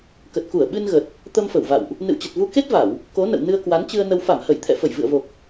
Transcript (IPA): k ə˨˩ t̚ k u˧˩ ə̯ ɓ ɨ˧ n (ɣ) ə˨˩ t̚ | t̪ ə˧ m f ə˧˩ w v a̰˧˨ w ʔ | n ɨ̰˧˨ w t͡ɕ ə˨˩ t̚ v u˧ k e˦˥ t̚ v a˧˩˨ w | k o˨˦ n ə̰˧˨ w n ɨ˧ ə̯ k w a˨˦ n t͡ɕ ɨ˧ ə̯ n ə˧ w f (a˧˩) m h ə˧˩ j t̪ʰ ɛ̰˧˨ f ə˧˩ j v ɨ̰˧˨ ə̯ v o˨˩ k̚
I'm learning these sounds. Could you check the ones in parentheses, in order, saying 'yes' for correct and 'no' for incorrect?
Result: yes, yes

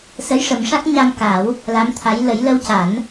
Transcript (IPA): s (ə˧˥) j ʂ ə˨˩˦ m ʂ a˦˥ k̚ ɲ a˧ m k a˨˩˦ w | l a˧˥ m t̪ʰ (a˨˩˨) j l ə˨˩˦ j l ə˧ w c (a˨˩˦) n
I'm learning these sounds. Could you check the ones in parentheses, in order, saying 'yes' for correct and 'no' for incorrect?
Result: yes, no, yes

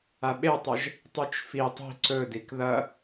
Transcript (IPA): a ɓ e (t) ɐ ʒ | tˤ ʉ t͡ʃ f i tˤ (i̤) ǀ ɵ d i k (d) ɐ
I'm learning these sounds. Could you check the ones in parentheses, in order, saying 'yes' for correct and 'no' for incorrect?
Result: no, yes, no

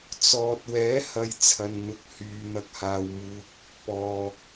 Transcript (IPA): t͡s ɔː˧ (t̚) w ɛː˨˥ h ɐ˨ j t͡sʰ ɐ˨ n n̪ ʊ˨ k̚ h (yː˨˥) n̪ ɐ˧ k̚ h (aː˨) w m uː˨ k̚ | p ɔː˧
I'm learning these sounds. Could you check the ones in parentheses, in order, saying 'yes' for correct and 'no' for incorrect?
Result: yes, no, yes

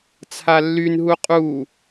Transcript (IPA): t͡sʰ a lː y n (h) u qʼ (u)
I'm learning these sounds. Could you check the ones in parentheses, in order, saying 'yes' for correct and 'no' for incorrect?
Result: no, yes

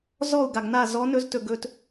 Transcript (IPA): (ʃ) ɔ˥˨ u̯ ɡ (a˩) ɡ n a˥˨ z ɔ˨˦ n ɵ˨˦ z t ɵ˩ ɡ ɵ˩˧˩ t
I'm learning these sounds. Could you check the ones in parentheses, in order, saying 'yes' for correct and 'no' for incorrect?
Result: no, yes

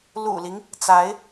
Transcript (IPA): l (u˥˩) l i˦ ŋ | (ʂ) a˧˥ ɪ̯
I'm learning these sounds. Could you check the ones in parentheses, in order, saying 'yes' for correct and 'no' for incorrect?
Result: no, no

